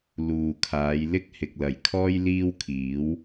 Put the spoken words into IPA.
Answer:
l uː˨ kʰ aː˨˧ j l ɪ˥ k̚ h ɪ˨ k̚ l ɐ˨˩ j kʰ ɔː˥ j l iː˥ w kʰ iː˨˥ w

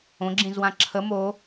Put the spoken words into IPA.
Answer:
õ ɡ͡ǁ ĩ z w ã ǁʰ ə m o

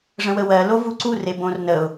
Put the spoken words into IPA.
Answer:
ʐ ə̃ w ə w ɜ l o v u ǀ u r e b õ r n ə ʊ̯

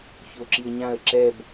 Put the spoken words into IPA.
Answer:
ç o ǁ i ə̯ ɲ ã ə̯ ǁ ɛ b

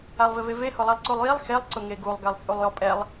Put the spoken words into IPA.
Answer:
a lˠ v ɪ v e v e h ʊ lˠ a lˠ ǀ u lˠ j i lˠ x e lˠ ǀ ʊ ŋ e ɡ u lˠ ɡ a lˠ t͡sʼ u lˠ j ɔ pʼ ɛ lˠ

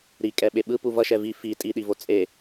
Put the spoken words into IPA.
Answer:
ɾ i kʼ ɛ ɓ e ɓ ɯ p u v ʌ ʃ ɛ v i f i tʼ i ɗ i v o t͡sʼ e

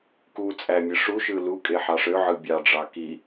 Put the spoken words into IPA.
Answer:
k u t͡sʼ æ mʲ ɯ ʂ u ʃ ɯ l u kʼ e ħ ɑ ʂ ø ʕ ɯ bʲ ɑ ɖ͡ʐ ɑ k i

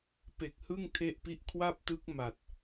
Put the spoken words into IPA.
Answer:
p e˨˩ k̚ h ɯ˥˩ ŋ tʰ e˥˩ ʔ p i˥˩ ʔ kʰ w a˥˩ p̚ t ɯ˦˥ k̚ m a˨˩ t̚

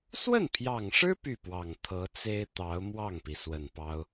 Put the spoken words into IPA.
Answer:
s w ə˥˩ n pʰ j ɑ˨˩ ŋ ʂ ɻ̩˥ p y˥˩ p w ɑ˨˩ ŋ t̪ʰ ɤ˧˥ t͡s e˥ ɪ̯ t̪ ɑ˧˥ ʊ̯ m w ɑ˥˩ ŋ p i˩ s w ə˨˩ n p ɑ˥ ʊ̯

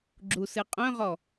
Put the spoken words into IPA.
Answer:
ɡ͡ǁ u s ɨ qʼ œ̃ ʁ ɔ

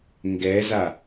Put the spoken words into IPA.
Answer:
ŋ ɡ ɛ z a

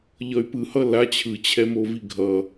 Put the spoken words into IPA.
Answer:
ʎ ʌ y̯ p ɯ h ʌ l a t͡ɕʰ ɯ t͡ɕʰ ɛ m o v i ɡʱ ʌ

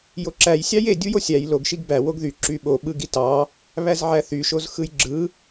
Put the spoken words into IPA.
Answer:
j o ǁ æ j sʲ ɑ j e dʲ u j o sʲ æ j l o ɡ ʃ i ɡ b æ w o ɡ ð y ǁ y ɓ o ɓ ɯ ɡ i t ɑ | β æ z ʕ æ θ y ʃ o z x ɯ j ɡ͡ǁ ɯ

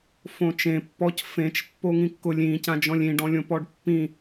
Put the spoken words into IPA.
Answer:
f õ t͡ʃ ẽ pː ɔ c f ẽ t͡ʃ pː o ŋ ĩ kː ʊ lʲ ĩ c ã d͡ʒ ɔ̃ lʲ ĩ ɖ ɔ̃ lʲ õ p ɔ ɖ pː ĩ

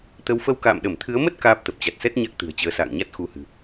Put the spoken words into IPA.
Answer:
t̪ ə˨˦ w f ə˧ w k a̰ː˧˨ m ɗ ə˧˩ m t̪ʰ ɨ˨˦ ə̯ m ə˦˥ t̚ k aː˦˥ p̚ t̪ ə˨˩ p̚ t͡ɕ a˨˩ t̚ s ɛ˦˥ t̚ ɲ a˦˥ k̚ t̪ ɨ̤˨˩ ə̯ t͡ɕ əː˨˦ s a̰ː˧˨ ŋ ɲ a˦˥ t̚ x u˧ h ɨ̤˨˩

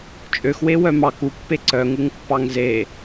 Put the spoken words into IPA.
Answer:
t͡ʃʼ ø x w e w œ m ɑ k u pː e ǀ œ ŋ u ŋ pː ɑ ŋ z e

